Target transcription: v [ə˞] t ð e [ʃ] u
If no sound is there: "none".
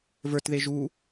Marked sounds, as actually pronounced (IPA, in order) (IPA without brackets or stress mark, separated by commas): ə˞, ʒ